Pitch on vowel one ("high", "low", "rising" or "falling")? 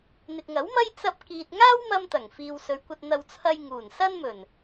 low